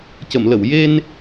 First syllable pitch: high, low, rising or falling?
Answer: low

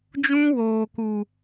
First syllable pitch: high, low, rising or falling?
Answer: high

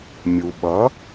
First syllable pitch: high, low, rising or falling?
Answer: low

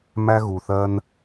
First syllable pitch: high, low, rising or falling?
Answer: high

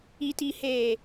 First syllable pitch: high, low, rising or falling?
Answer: low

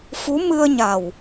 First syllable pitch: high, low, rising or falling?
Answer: rising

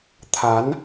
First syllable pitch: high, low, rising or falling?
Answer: rising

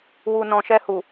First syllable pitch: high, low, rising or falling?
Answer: low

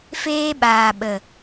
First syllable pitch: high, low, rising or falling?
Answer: high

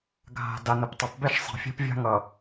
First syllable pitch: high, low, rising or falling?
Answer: low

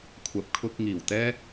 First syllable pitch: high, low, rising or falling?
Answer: low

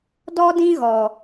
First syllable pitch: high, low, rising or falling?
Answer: high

